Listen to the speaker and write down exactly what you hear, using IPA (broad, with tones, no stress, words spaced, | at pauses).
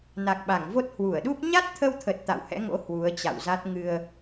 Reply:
na˨˩k̚ɓa˧˩ŋvo˦˥t̚ hwu˧˩ə̯ɗu˦˥p̚ ɲa˦˥t̚t̪ʰə˧wt̪ʰə˨˩t̚ t̪a̰˧˨whɛ̰˧˥ŋo̰˧˥ hwu˨˦ə̯t͡ɕa̰˧˨wza˦˥t̚ ŋɨ˧ə̯